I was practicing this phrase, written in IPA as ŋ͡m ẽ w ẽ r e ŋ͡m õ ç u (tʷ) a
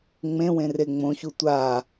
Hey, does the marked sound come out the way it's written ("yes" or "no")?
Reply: yes